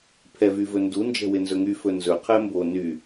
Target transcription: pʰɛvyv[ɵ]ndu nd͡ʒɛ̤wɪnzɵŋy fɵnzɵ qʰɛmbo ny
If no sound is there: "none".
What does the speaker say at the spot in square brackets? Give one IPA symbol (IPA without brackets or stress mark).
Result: ɵ